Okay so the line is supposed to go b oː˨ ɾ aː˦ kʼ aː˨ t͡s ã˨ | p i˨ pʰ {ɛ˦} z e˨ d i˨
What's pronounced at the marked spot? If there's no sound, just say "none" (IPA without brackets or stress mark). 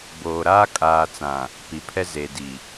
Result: ɛ˦